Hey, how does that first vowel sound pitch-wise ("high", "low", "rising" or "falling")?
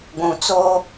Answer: low